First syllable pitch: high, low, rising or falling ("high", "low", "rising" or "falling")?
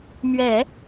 low